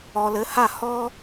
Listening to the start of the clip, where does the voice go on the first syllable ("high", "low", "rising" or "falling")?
low